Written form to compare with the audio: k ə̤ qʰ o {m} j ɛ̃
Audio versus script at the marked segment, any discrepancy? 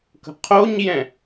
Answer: yes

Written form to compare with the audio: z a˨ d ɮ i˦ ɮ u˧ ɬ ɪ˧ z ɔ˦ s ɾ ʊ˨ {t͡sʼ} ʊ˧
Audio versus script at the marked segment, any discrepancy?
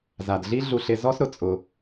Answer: no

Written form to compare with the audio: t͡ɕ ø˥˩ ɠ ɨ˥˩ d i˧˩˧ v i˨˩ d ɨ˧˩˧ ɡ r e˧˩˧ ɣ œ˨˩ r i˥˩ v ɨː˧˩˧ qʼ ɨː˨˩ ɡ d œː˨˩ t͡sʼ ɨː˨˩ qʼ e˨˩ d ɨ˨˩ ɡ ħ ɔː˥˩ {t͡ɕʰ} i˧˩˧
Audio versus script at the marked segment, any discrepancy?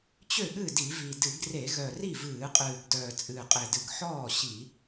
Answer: yes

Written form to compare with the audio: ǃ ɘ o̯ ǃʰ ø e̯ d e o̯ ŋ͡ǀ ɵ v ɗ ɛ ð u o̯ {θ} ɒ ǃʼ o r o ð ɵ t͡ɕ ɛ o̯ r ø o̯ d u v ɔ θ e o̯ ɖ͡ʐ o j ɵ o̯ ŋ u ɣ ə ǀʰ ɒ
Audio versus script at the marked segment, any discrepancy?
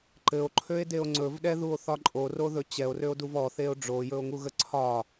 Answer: no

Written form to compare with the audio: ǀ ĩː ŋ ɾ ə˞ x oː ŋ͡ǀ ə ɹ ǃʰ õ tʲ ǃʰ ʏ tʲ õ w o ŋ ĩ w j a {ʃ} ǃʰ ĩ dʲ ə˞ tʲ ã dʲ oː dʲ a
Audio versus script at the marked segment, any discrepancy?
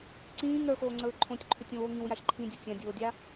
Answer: no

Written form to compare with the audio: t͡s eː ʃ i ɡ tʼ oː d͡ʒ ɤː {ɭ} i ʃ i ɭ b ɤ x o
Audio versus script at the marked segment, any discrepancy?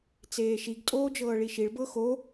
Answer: no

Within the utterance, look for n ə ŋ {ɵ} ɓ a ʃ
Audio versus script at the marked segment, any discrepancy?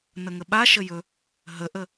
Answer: yes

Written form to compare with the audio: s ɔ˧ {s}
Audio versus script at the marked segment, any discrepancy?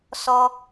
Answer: yes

